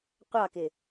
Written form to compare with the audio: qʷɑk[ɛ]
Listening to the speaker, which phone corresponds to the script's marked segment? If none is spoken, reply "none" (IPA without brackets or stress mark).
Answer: ɪ